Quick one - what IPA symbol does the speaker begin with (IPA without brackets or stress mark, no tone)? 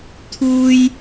t̪ʰ